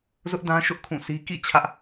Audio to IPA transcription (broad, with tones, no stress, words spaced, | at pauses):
zʊ˦ʔdã˦ ʃʊ˦ʔ kʰũ˦˨si˦ kḭ˦˨ t͡ɕʰä˦ʔ